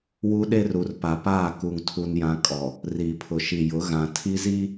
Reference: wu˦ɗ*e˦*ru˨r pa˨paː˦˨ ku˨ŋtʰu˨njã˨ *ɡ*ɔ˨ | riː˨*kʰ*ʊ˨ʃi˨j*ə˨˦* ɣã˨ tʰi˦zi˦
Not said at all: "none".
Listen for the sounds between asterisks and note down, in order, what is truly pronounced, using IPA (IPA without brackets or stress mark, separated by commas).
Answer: e˦, kʼ, pʰ, ʊ˨˦